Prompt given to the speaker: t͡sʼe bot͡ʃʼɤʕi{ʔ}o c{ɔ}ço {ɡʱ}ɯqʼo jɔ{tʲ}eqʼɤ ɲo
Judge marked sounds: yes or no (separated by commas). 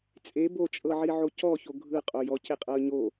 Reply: no, yes, yes, no